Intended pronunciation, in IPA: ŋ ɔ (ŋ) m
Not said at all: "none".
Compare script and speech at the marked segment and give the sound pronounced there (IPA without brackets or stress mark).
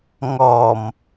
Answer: none